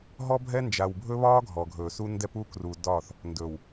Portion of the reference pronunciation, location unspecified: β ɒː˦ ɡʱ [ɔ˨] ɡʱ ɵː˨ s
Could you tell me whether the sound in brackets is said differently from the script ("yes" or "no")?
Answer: no